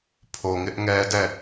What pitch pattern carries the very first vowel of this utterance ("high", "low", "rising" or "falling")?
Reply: low